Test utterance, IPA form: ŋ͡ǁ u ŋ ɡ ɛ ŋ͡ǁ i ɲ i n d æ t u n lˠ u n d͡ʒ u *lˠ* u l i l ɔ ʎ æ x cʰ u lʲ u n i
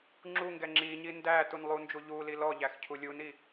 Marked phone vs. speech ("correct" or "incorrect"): incorrect